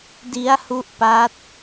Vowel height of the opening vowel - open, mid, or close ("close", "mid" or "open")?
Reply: close